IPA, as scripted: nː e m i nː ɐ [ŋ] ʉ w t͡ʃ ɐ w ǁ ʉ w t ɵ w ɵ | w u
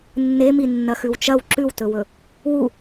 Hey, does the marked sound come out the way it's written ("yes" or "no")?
no